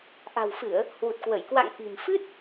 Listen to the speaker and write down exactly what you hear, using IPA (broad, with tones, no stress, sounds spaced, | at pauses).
ʔ a̤˨˩ w f ɨ˧˩˨ ə̯ | h w u˨˩ t̚ k w ə˧˩ j k w a̰˧˨ ŋ ʔ i̤˨˩ m f ɨ˦˥ t̚